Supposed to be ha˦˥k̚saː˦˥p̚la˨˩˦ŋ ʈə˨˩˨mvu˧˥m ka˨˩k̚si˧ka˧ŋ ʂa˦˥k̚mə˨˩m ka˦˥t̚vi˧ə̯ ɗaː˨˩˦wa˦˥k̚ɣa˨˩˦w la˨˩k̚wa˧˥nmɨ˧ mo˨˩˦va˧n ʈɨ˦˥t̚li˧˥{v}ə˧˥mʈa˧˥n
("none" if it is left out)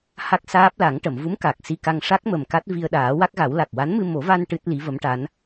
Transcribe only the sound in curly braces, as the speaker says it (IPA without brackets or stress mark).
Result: v